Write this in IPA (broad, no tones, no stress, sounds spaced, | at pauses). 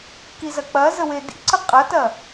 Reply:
k i z ɐ k͡p ɐ z ə w e d ḭ ǀ ə qʼ ɐ t ɐ